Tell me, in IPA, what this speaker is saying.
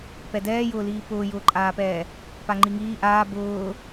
p ɛ d ɛː j ʊː l iː p ʊː j ʊː ǃʼ aː p ɛː | p a ŋ͡ǃ i ŋ iː ʔ aː b ʊː

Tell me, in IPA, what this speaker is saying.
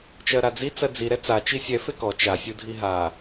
t͡ʃ ɜ ɾ a d͡z i t͡s ɜ d͡z i ɾ ɛ t͡s a t͡ʃ i sʲ ɛ f e k ɔ t͡ʃ a sʲ u dʱ i ɦ a

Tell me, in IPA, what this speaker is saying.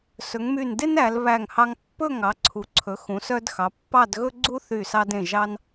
s ɵ˩˧ ŋ m y˧˩ n d e˥ n æ˩˧ l β æ˧˩ ŋ h ɑ˧ ŋ pː ɵ˥˧ ŋ ɑ˩˧ ǀʰ u˩˧ ǀʰ ɵ˩˧ x ũ˩˧ s œ˧ d x ɑ˩˧ pː ɑ˥˧ d ɣ ɵ˥ ɡ͡ǀ u˥ θ y˧˩ s ɑ˧ d ẽ˧˩ ʒ ɑ˧ n

